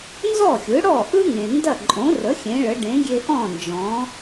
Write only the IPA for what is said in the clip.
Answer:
n z ɔ˥˩ xʲ ɯ˩˥ ɽ ɔ˥˩ ʔ ɯ˥ ŋ ẽ˩ n d ɐ˥˩ ǃʼ õ˩˥ r ə˩˥ xʲ ẽ˩˥ ɭ ə˩˥ ɖ ẽ˩˥ ɡʲ e˧ ʔ ɔ̃˥˩ n d͡ʒ ɔ̃˩˥

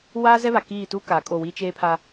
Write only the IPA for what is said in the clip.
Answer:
w aː˦ z ɛ˦ β a˨ k iː˦˨ t u˦ k aː˨ kʼ o˦˨ w i˦ t͡ʃ eː˦ pʰ a˦

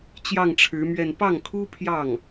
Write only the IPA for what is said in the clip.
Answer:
t͡ɕ j ɑ˥˩ ŋ ʈ͡ʂʰ ɻ̩˧˥ m ɥ ɛ˥˧ n p ɑ˥˩ ŋ kʰ u˥ pʰ j ɑ˥˩ ŋ

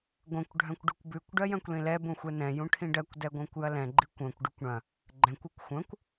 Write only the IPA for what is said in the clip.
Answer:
ɡʷ ɛ̃ kʷ ɖʱ œ̃ kʷ ɖ ʉ kʷ b ʉ kʷ ɖ ɜ j œ̃ kʷ l ĩ l ɛ b ũ xʷ ɛ n ɛ̃ j ũ ʈʰ ĩ ɖ ɜ kʷ d ɛ ɡʷ œ̃ kʷ j ɐ l ɛ̃ ɡ͡ǃ i kʷ œ̃ kʷ ɖ ʉ kʷ ɳ ɐ̃ | ɡ͡ǃ ɛ̃ kʷ u kʷ xʷ œ̃ kʷ

